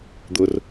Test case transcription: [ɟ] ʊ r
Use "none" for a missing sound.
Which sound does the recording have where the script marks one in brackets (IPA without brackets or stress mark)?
d̪